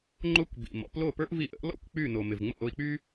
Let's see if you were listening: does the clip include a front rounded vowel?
yes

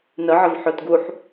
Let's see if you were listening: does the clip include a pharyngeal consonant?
yes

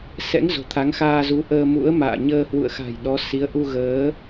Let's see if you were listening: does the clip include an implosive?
yes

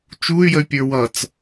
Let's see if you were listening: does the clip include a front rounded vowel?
yes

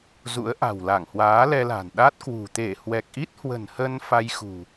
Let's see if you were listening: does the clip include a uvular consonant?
no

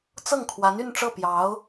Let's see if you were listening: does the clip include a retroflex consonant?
yes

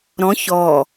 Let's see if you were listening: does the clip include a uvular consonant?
no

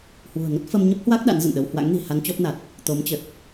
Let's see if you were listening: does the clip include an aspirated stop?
no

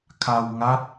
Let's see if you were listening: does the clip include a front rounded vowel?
no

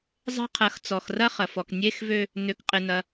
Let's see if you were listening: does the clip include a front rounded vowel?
yes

